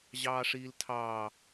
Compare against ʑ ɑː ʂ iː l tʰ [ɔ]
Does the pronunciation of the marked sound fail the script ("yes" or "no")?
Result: yes